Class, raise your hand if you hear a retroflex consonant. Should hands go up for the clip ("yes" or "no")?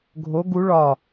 yes